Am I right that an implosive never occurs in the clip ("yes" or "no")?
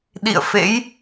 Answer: no